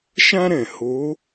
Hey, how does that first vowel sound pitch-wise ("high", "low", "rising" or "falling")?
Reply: high